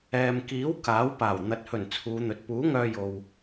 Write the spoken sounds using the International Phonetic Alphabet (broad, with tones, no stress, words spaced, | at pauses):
ɛː˨mkiː˨˥w kaː˨˥wpaː˨˩w n̪ɐ˨t̚hɵ˨˩n t͡sʰuː˨˧n̪ɵ˨t̚ puː˨˥ ŋœː˧jo˨w